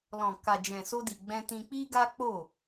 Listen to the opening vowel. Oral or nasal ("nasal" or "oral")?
nasal